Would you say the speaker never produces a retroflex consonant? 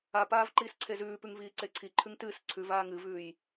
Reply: yes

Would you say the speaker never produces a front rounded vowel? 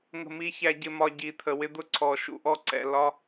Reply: yes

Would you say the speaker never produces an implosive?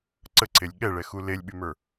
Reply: no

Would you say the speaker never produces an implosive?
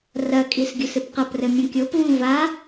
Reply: yes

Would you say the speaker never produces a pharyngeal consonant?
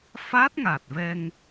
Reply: yes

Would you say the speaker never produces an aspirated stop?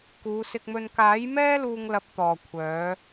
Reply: no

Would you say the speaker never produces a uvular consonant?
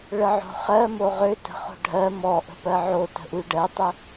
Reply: no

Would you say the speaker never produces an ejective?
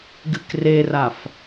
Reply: yes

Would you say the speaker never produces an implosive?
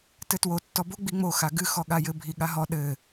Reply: no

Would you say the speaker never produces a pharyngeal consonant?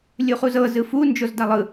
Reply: yes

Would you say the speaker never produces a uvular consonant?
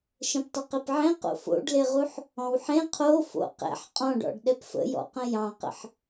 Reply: no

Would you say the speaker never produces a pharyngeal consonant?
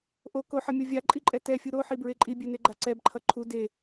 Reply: no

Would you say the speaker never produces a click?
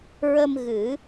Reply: yes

